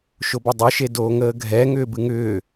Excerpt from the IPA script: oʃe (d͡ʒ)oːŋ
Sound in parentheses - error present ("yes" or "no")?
yes